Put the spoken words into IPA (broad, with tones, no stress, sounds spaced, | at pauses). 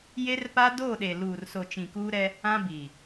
j e˦ r p a˦ d o˦˨ ɗ e˨ l uː˨ r s o˨ t͡ʃ ĩ˨ k uː˦ ɾ ɛ˦ | ã˦ b iː˨